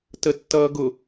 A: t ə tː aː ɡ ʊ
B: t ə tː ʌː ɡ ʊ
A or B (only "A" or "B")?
B